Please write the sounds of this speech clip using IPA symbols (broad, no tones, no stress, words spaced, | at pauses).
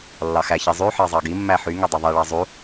lːɑxæçi zˤyħɑ zˤɑɡimːæ ħyŋø dˤiðˤiɭɑ zˤu